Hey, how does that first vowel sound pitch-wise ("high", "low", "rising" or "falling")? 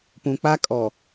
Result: low